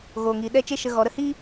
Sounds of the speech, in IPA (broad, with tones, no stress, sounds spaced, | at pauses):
ɣ oː˨ ŋ iː˨ ɗ ɛ˦˨ t͡ʃ e˦ ʃ ə˧ ɣ ɔ˨˦ ɾ ə˦˨ h i˦